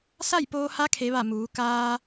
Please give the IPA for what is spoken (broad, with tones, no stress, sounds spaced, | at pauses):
s a˥˨ j p oː˧ h a˧˥ kʰ e˧˥ ʋ a˥˨ m uː˩˧ k aː˧